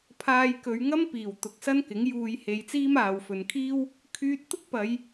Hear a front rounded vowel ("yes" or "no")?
yes